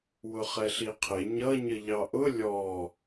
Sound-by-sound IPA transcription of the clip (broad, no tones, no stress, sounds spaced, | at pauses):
w ʊ χ ɛ ɬ i qʰ ɪ ɲ ʌ ɲ ə ʎ ɑ ʔ ʊ lʲ ɔ